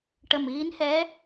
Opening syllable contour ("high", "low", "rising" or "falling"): low